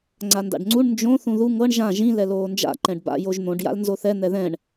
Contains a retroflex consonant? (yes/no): yes